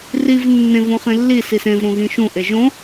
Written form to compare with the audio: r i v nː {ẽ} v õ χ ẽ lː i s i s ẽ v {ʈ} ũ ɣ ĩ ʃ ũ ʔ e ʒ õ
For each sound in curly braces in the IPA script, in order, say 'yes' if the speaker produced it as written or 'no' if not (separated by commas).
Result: yes, no